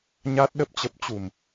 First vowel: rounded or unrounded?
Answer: unrounded